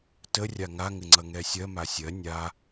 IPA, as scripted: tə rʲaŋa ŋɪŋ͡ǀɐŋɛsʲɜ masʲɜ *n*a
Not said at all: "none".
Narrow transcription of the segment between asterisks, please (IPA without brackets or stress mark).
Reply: nʲ